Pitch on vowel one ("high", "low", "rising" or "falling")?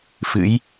rising